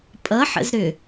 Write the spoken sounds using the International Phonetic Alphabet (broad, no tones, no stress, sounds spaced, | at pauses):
pʼ ʌ ħ ə̰ z ɾ ʏ